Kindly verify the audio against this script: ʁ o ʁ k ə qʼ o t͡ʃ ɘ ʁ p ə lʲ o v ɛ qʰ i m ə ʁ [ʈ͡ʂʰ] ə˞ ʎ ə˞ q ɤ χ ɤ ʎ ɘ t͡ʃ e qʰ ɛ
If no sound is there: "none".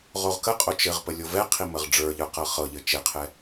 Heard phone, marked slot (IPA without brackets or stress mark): ɖ͡ʐ